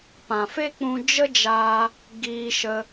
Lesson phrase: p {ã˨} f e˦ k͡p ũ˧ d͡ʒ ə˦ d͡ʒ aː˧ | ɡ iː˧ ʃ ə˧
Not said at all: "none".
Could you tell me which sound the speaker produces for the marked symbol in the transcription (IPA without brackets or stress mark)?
ã˨